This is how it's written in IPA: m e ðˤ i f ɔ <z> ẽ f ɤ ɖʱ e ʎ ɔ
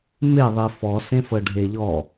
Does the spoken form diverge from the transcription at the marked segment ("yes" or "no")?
yes